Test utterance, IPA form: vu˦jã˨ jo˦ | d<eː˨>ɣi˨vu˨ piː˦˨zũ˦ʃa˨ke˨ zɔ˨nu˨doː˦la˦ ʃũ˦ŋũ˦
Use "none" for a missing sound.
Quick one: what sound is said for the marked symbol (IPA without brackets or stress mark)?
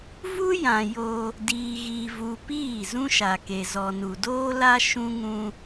iː˨